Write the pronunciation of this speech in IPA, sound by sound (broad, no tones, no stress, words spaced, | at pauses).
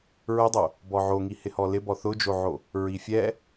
ɹɪdˤo | bɔʕoŋi hɪhɔlɪ bɔθʊd͡ʒoʕo | ɹifʲɛ